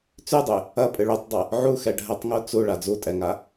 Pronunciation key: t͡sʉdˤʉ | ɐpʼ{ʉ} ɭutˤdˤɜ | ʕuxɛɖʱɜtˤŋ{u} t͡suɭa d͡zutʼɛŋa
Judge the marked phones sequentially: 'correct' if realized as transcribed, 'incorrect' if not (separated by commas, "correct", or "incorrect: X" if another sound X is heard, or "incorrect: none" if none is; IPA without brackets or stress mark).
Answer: incorrect: ɨ, correct